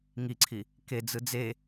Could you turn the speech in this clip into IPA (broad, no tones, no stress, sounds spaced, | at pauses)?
ŋ i ǀʰ i | k e d͡z ɯ d͡z e